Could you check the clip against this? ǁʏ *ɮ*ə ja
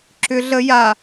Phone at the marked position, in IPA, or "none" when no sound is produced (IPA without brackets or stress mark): ɮ